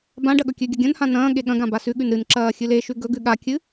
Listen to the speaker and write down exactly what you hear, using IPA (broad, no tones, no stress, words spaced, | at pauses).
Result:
bãɖɐ ɠɵkʲʉɡʲɐ ɡʲɐ̃nhã nɐ̃ː ɠeɠɐ̃ɡã basʉɠʉn ɾɨnǁɐː xʲɨleʃʉ ɡɵɡʉ ɠakʲɨ